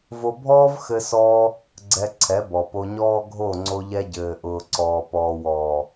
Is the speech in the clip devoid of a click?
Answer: no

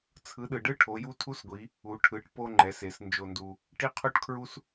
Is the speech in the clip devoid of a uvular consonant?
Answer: no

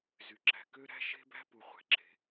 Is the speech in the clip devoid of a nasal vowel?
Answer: yes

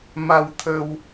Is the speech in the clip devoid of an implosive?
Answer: yes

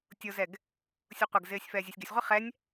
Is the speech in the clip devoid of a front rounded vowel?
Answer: yes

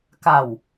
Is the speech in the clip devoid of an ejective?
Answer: yes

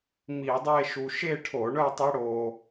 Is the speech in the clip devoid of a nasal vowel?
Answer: yes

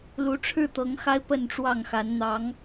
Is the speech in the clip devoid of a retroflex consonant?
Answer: no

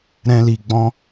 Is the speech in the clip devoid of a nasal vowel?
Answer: no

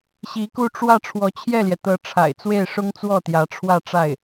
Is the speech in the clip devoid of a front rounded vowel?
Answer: yes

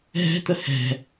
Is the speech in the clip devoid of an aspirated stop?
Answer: yes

